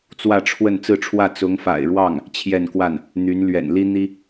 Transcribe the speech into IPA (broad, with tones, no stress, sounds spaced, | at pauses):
t͡s w ä˥˧ ʈ͡ʂʰ w ə˥˧ n t͡s ɹ̩˥˧ ʈ͡ʂʰ w ä˥˩ t͡s ʊ˧˥ ŋ f a̰˨˩ ɪ̯ ɻ w ɑ˥˩ ŋ | t͡ɕʰ j ɛ˥˧ n k w a˥˩ n | n̪ y˧˥ n l ɥ ɛ̰˨˩ n l i˥ n̪ i˥